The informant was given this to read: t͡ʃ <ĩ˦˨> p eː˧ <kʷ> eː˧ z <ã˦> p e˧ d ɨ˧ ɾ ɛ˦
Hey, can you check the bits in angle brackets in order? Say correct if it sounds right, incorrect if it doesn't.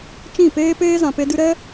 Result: correct, incorrect: p, incorrect: ã˨

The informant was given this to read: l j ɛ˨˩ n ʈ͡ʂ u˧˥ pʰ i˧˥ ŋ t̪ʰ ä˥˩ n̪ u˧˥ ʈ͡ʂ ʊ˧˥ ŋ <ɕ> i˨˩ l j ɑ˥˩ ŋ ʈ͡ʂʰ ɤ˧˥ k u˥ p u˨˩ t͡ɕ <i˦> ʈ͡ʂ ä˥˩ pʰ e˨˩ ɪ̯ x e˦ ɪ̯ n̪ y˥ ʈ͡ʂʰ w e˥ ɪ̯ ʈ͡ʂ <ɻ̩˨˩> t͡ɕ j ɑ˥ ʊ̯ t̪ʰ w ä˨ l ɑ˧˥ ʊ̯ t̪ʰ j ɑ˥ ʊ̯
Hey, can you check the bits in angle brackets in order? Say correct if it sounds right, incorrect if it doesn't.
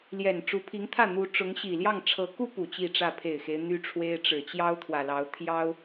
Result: correct, incorrect: i˥˧, correct

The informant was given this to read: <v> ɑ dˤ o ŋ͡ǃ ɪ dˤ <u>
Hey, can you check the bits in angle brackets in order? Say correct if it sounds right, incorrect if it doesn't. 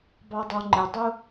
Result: incorrect: b, correct

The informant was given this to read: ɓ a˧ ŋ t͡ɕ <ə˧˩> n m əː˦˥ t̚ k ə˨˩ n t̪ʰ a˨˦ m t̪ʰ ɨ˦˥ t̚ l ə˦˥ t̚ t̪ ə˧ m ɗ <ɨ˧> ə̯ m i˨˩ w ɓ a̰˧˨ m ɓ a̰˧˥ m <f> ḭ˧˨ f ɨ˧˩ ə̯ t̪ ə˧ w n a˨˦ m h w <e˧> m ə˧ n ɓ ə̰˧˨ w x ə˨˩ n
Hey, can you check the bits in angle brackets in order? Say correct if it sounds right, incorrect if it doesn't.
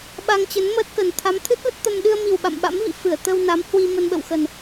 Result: incorrect: ə˨˦, correct, incorrect: v, incorrect: i˧

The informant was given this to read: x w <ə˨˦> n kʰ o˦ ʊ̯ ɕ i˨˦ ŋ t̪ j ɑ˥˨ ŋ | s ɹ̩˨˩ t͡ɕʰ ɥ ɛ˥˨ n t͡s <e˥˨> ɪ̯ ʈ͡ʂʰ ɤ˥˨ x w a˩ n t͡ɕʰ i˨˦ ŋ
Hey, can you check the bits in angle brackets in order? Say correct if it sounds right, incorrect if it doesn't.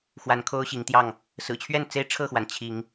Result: incorrect: a˨˦, incorrect: e˦

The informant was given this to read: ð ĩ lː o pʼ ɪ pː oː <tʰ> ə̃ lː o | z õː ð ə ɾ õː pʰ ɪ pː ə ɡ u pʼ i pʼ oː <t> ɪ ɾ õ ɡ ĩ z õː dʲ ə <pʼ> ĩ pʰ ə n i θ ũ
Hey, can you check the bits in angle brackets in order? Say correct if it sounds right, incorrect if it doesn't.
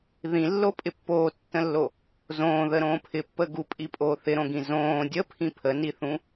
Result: incorrect: tː, incorrect: θ, incorrect: pʰ

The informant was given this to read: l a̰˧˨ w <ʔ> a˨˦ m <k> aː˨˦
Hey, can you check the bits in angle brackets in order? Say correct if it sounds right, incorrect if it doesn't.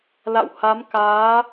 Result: incorrect: h, correct

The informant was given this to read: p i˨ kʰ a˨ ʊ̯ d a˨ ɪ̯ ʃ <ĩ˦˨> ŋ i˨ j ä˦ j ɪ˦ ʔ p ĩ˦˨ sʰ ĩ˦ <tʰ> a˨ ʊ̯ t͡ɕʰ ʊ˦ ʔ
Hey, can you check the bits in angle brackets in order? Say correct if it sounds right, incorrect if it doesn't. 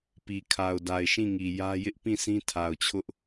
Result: correct, correct

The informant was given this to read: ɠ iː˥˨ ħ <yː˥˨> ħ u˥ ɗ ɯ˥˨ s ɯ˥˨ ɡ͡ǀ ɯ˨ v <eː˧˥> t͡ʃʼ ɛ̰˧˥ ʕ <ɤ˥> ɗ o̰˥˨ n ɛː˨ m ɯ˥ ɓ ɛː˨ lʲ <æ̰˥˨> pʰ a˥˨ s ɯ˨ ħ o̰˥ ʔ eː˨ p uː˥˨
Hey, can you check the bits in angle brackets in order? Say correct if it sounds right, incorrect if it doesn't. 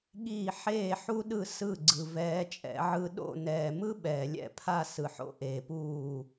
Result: incorrect: eː˥˨, incorrect: ɛː˧˥, incorrect: ɯ˥, incorrect: ɛ̰˥˨

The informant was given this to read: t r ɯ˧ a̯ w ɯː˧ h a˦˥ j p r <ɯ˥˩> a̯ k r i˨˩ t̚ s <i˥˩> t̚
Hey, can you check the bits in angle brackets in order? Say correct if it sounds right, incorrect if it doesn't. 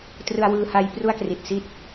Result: incorrect: u˥˩, correct

